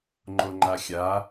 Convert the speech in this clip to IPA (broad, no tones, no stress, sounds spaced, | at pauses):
ŋ͡ǃ o ŋ͡ǃ a xʲ a